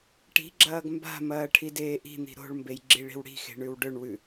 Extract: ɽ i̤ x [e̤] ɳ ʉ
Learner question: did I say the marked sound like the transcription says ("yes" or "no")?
yes